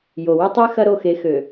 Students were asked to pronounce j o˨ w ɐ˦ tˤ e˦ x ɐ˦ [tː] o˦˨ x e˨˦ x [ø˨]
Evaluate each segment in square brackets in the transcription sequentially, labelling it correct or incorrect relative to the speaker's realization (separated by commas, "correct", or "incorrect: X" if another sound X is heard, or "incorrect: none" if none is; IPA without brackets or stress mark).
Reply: incorrect: ɾ, correct